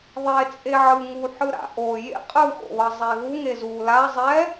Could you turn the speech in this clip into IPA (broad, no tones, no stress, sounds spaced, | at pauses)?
ðˤ e t͡sʼ e ʕ ɯ ŋ u ħ ɯ ɾ a̰ ʔ o j ḛ qʼ ɯ x o̰ β ʌ zˤ e ɣ u ŋ e z u l a zˤ ɛ